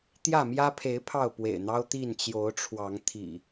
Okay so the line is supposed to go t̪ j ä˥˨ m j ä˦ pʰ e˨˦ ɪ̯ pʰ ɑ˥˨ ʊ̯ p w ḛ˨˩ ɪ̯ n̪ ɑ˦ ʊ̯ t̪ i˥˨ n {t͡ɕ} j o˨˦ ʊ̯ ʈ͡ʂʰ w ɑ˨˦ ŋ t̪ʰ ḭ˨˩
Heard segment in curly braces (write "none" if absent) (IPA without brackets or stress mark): t͡ɕ